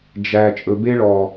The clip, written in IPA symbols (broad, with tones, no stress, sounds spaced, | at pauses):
d͡ʒ æ˨ t͡ʃʼ ɵ˨ b e˦ ɭ ɔ˨